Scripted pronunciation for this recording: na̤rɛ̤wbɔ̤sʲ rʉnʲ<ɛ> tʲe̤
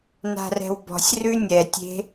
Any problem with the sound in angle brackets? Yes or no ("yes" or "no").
no